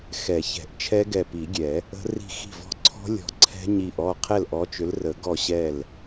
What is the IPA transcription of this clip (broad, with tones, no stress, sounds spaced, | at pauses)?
x ɛ˨˩˦ ç ɛ̤˨˩˦ ʔ t͡ʃʰ ɛ˦˥ ɡ ɛ˧˩ p i˨˩˦ ɡʲ ɛ˨˩˦ | ə̤˦˥ r i̤˥˩ x i̤˥˩ v ɔ̤˥˩ ǀʰ ɔ̤˦˥ lʲ ɔ̤˧˩ ǀʰ ɛ̤˦˥ ɲ i˧˩ ʔ ɔ˥˩ qʰ ɛ˥˩ l ʔ ɔ˨˥ t͡ʃ ʏ˨˥ l r ə˨˩˦ ɡ ɔ˥˩ ɕ ɛ˥˩ l